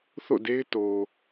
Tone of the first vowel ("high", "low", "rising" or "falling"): falling